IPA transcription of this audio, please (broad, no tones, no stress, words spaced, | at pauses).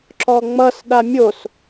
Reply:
ǁɔŋ͡mʌs ɗamʲos